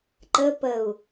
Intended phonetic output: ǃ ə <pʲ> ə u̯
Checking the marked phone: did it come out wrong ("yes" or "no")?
yes